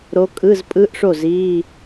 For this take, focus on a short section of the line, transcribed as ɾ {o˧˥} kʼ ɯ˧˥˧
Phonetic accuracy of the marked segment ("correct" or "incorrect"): correct